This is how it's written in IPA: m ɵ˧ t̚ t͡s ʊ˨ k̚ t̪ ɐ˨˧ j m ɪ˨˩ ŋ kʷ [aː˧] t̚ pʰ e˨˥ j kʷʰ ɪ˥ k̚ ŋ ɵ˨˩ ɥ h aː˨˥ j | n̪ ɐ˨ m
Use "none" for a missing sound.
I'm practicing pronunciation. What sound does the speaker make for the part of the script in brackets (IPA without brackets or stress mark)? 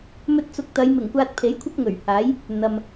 aː˧